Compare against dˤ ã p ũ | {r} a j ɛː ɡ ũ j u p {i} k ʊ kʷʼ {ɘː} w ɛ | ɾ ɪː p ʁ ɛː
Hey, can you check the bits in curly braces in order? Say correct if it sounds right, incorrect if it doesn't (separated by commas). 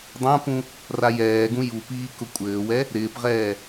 correct, incorrect, correct